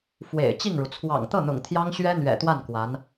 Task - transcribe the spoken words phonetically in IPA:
fwḛ˨˩ɪ̯ t͡ɕi˥˩ŋɻu˩ t͡sʰwɑ̰˨˩ŋt̪ɤ˥˩n̪ʊ̰˨˩ŋ t̪ʰjɑ˥ŋɕɥɛ˥n̪ɥɛ̰˨˩t̪wa˥˩n kwa˧˥n

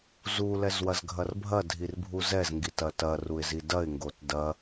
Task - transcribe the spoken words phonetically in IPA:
zu lɛzwɐzɡʱɐrbʱɐ dʱirbʱuzɛz ŋɡitɐtɐ ruɪ̯zidɐɪ̯ ŋɡotdɐ

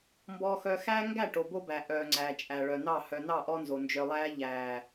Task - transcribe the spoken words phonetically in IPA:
mbɔː˨xœ˨xæː˦ŋɡæ˦˨ ʈo˨bo˦bæ˨ ʔœː˨ŋ͡ǀæː˨ t͡ʃʼæ˨ɭœ˨ nɑ˦˨ hœ˨ nɑ˦˨ʔɔ˦nzo˨ nd͡ʒœ˨lˠæː˦ ʎæː˨

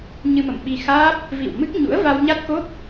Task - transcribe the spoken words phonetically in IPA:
ɲɨ˧mə̰˧˨mɓi˧xaː˦˥p̚ | vḭ˧˨wmɨ˦˥k̚ɲṵ˧˥ə̯ va˧wɲa˦˥t̚ko˦˥p̚

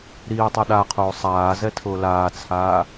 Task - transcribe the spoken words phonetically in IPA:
ɾiːtˤɛ ɗaqʰoː sˤaːzɛtʰʊː laːt͡sʰaː

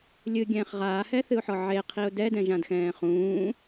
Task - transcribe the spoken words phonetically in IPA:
lʲɨɡʲɛ̃ːχ ʁaːhɛθɨʊ̯ħɔ ʕeqʰiʊ̯ dɛdɛ̃ʒãdxɛ̃ː χũː

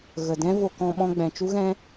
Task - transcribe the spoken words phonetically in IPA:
ɣə˨dɛ̃˦vo˧ kɔ̃˧ ɓɔ̃˧ɡ͡bɛ̃˨t͡ʃu˦ɣɛ̃˦

